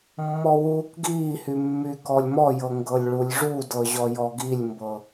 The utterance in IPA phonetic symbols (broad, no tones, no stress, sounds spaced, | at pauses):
mː ɔ w uː k ɡ iː h y mː y k ɔ lʲ m ɔ j ɤ ŋ ɡ ɤ lʲ ɭ u lʲ ʐ u d ɤ ʑ ɔ j ɔ ɡ i lʲ m b ɤ